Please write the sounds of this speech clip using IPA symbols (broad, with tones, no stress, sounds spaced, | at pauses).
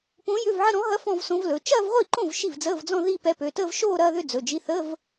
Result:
p õ˧˥ j ʏ˧˥˧ v ʕ ə˥˧ ɾ ɔ̃˧˥ ɦ ɐ˧˥ f ɔ̃˥˧ v s õ˧˥ v l ɵ˩˧˩ t͡ʃ ɐː˥˧ v ʁʷ i˥˩ ǃ õ˥˩ v ʃ i˥˩ v d͡z əː˧˥˧ v d͡z ɔ̃˥˧ ð i˥˧ p ɛ˧˥ p ø˩˧˩ t əː˥˧ v ʃ oː˥˧ ɾ ɐː˥˧ ð ʏ˥˧ d͡z ɵ˩˧˩ d͡ʒ i˧˥˧ θ ə˧˥˧ v